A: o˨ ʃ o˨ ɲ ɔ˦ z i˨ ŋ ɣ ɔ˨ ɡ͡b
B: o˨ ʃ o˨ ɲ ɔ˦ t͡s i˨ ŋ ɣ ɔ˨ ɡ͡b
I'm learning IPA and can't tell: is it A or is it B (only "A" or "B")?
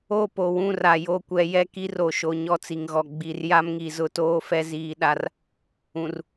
B